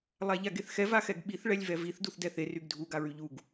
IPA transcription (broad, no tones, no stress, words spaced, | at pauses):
lˠaʎaɡeθxɛv axɛɡɓiθ ɭɛlʲvɛviθ duθdɛθe ryɡdʱu ɡaɹyʎuɡ